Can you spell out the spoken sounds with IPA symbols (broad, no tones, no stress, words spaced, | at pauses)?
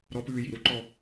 ɾɔpʉː jḭɾuǃɔ